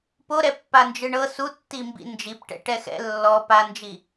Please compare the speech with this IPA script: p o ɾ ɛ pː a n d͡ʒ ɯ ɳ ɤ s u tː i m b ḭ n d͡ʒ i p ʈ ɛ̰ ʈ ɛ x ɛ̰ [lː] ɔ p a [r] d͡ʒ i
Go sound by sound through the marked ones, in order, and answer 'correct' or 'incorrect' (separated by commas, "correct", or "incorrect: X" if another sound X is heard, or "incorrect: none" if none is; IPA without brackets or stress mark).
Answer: correct, incorrect: n